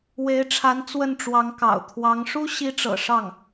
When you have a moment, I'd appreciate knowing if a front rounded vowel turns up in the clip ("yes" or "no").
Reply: no